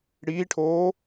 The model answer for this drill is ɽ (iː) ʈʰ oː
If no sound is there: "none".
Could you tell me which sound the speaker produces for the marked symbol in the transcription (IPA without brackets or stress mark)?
iː